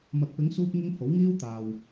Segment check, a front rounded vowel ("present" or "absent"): absent